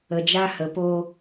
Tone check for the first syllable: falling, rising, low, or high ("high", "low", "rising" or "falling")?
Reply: low